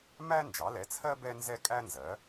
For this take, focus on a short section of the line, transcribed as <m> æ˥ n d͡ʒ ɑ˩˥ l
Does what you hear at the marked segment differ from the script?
no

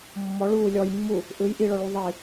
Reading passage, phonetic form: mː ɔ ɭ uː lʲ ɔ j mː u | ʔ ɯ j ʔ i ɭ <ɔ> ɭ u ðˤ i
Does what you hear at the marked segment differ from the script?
no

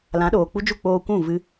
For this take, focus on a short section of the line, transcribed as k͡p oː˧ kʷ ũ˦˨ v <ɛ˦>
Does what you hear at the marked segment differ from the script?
yes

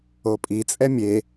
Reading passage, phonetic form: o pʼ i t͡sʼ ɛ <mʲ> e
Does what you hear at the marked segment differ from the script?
no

